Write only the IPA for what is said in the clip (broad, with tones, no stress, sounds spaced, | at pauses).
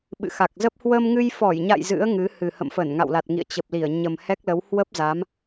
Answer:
ɓ ɨ̰˧˨ x a˨˩ k̚ z ə˦˥ p̚ h w ə˧ m ŋ ɨ˧ j f ɔ˧˩ j ɲ a̰˧˨ j z ɨ̰˧˥ ə̯ ŋ ɨ˨˦ h ɨ˨˩ h ə̰˧˨ m f ə˧˩ n ŋ a̰˧˨ w l a˨˩ t̚ ŋ ḭ˧˨ ə̯ t͡ɕ ə˨˩ p̚ l i˧˩ ə̯ ɲ ə˨˩ m h ɛ˦˥ k̚ l ə˨˦ w h w ə˦˥ p̚ z a˨˦ m